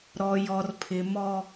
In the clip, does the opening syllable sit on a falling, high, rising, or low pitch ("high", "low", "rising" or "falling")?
low